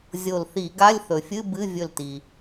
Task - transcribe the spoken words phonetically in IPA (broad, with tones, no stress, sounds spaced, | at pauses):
zʲ o˧˩ l θ i˧˩˧ ɡ a˧˥˧ lʲ θ ɵ˩ fʲ ɨ˧˥˧ b ɨ˧˥˧ vʲ ɵ˧˩ l t i˩